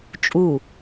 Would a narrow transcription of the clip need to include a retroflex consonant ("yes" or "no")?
no